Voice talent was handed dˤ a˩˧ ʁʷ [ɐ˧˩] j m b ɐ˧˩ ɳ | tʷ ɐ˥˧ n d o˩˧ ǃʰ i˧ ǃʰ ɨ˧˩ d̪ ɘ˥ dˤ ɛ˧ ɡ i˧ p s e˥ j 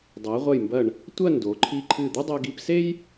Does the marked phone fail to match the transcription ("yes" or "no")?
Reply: no